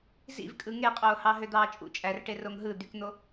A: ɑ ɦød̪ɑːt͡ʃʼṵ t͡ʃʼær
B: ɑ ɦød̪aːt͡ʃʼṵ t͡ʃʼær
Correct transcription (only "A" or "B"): A